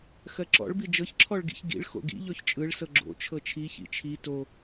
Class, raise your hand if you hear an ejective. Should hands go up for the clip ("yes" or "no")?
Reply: yes